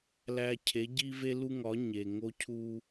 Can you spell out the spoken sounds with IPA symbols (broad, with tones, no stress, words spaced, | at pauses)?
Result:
læ˨ cʰe˨˦ɟi˦ ve˦lu˦ŋɒ˨˦ ɲe˨ ŋo˦cʰu˦